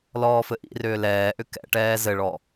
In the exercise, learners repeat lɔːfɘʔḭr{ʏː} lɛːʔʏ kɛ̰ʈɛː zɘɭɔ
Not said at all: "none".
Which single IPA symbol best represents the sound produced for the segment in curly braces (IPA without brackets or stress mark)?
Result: ʏː